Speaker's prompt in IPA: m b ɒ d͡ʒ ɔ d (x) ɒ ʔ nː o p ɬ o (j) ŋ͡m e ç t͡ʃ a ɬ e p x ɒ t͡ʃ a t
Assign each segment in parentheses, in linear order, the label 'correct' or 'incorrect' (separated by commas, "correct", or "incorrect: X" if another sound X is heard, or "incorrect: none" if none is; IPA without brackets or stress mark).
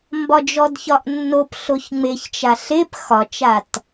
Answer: incorrect: ç, incorrect: ç